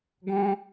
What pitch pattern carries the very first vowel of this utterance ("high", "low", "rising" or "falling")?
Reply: high